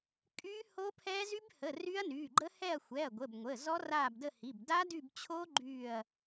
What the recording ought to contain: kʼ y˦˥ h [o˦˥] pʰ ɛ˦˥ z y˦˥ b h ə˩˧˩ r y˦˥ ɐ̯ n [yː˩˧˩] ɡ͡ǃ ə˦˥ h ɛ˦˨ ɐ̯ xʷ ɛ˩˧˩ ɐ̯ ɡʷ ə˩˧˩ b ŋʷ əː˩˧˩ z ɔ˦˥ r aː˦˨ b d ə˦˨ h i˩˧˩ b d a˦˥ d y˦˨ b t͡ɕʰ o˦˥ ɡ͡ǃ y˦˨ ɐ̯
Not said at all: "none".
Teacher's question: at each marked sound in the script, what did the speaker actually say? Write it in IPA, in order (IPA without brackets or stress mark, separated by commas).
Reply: o˦˥, yː˩˧˩